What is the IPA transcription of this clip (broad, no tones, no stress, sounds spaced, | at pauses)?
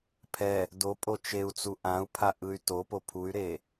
pʰ ɛ | d o pʼ o t͡ʃ e u̯ t͡s u ʔ ã u̯ pʰ a ʔ ɯ y̯ t o p o pʰ u y̯ ɾ e